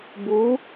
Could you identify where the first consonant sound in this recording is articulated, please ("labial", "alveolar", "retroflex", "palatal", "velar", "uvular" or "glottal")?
labial